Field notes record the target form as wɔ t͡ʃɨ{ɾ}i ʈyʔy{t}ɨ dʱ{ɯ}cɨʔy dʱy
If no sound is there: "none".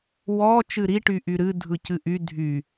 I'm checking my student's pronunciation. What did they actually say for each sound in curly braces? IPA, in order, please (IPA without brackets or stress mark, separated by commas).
ɾ, ɾ, ɯ